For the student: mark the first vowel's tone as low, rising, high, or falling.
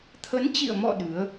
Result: rising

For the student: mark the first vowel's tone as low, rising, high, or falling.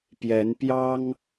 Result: rising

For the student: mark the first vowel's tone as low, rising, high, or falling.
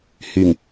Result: low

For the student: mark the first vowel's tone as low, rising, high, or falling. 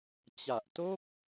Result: low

